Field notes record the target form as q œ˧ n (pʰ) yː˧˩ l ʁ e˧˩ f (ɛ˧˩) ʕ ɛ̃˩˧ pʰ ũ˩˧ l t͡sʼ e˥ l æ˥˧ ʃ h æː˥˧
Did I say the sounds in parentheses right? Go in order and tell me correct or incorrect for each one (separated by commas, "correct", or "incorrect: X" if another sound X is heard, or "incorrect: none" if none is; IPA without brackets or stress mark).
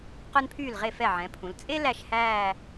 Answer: correct, correct